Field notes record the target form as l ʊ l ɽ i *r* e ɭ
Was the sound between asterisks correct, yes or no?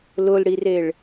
yes